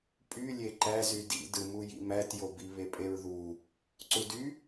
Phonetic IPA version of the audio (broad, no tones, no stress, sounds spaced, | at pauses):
pʼ y lʲ e ǃ æ z y d ḭ d ɯ m u j ḭ m æ t j o b i β e pʼ e ɹ ð u | ǀ u d y